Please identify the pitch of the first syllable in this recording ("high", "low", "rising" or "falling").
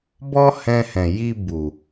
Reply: high